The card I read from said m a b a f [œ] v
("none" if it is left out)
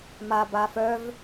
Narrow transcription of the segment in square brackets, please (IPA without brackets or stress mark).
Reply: œ